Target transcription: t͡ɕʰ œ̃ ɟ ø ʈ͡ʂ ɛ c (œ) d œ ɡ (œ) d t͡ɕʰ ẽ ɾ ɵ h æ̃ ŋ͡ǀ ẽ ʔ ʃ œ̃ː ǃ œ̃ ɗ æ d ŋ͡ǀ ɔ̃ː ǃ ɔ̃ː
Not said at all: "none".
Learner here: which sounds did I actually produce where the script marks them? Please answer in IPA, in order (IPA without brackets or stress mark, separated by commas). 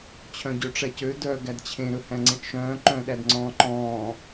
ø, æ